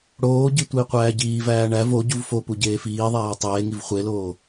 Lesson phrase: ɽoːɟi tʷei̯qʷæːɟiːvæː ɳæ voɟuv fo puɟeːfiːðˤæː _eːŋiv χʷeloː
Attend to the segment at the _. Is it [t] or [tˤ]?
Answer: tˤ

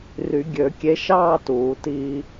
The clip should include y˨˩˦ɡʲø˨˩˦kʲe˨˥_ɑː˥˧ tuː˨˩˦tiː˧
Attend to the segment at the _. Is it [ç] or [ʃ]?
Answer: ʃ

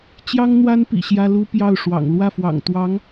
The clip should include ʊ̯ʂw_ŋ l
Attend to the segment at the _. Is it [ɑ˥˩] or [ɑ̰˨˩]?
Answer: ɑ̰˨˩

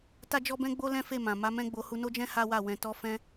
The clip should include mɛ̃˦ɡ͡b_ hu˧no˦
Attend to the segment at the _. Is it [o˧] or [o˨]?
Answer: o˧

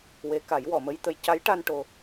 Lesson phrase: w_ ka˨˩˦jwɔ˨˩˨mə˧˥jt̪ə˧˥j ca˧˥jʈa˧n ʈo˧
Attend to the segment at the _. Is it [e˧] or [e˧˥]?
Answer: e˧˥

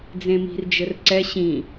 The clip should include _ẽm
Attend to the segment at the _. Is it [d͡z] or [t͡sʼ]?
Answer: d͡z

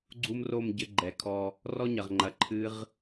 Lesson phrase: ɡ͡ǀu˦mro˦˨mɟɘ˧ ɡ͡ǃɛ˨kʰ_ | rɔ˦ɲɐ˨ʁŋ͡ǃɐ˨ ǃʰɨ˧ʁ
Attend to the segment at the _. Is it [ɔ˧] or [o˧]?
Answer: ɔ˧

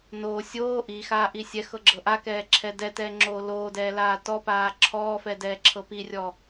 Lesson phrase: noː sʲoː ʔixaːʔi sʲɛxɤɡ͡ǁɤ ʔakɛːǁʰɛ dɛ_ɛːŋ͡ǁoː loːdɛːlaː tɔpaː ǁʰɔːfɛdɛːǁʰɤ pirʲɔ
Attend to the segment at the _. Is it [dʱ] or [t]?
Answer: t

